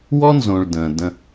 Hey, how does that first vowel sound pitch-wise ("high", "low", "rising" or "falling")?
high